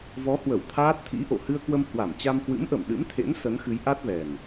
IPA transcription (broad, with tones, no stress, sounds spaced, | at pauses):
v ɔ˨˦ h w ə˧˩ w t̪ʰ aː˦˥ t̚ t̪ʰ ḭ˧˥ ʔ o̰˧˨ h ɨ˧ ə̯ k w ə˧ m h w a˧˩ m t͡ɕ a˧ m h w ɨ̰˧˥ m ʔ ə˧˩ m ɗ ɨ̰˧˥ m t̪ʰ ḛ˧˥ n s ə˨˦ n x ɨ˨˦ j ʔ a˦˥ t̚ v ɛ˨˩ n